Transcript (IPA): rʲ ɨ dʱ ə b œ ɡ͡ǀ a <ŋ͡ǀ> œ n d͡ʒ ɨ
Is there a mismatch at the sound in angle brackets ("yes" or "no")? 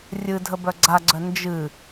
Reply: yes